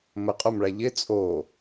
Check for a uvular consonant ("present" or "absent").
present